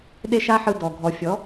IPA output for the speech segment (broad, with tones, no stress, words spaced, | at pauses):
ɗe˦ʃa˦ħɯ˧ dɔ˨ɡʱɔ˨ fʲɔ˨˦